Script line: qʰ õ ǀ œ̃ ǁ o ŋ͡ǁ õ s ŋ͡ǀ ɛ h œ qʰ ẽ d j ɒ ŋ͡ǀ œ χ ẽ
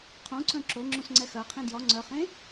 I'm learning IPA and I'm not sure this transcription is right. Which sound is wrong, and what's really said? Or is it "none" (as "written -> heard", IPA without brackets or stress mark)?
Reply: h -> x